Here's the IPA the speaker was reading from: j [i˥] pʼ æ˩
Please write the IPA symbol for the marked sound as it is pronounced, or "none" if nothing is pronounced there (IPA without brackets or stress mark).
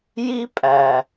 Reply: i˥